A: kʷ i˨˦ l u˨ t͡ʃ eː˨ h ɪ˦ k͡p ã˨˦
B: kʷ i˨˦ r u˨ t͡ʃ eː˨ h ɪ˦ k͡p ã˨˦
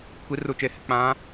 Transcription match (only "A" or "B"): B